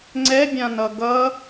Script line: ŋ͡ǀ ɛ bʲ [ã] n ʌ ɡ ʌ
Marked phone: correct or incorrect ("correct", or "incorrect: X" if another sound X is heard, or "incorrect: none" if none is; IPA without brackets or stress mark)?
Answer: correct